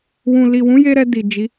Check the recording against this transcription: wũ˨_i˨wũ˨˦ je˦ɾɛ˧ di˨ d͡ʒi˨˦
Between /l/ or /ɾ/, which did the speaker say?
l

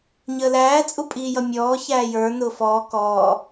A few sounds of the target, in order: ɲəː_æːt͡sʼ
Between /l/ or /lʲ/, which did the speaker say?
l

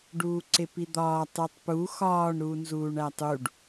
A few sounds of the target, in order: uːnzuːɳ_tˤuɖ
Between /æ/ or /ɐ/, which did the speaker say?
æ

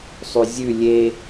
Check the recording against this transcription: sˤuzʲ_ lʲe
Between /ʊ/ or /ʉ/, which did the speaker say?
ʉ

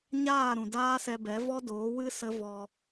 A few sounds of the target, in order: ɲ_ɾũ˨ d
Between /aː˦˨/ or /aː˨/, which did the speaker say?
aː˦˨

